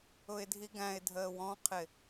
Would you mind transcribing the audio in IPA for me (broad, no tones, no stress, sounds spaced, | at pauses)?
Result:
ʊ ɪ̯ dʱ i ɡ æ̃ ɪ̯ dʱ əː w ɔ̃ qʰ ɪ